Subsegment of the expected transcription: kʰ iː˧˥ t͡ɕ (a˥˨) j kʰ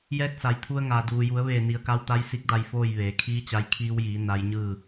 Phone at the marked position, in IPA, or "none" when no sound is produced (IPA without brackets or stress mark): a˧